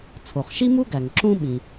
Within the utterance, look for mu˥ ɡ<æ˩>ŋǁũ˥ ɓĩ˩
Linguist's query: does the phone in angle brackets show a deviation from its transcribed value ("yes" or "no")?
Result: no